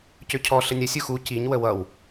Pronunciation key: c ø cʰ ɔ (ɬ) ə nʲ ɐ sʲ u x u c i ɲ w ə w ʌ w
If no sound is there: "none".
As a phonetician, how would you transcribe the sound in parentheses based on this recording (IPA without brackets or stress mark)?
ɬ